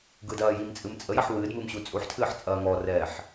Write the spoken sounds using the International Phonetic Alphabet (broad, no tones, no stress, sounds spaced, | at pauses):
ɡ ɯ d ɐː j i m t͡sʼ ɨ m t͡sʼ ə j ɐ ħ w ɨː d m ɨ m ɕ u t͡sʼ u ħ tʰ ɨː ħ t͡sʼ ɐː ŋ ɔ r ɛː ħ